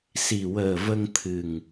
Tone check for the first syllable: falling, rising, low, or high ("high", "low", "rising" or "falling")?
low